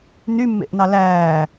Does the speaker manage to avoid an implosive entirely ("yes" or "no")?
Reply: yes